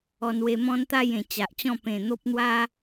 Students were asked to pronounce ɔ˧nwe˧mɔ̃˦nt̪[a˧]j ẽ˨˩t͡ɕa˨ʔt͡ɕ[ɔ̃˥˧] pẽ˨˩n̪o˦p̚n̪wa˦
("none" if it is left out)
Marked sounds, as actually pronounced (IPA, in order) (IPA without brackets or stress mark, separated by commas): a˥˧, ɔ̃˥˧